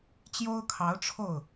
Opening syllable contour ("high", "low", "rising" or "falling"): high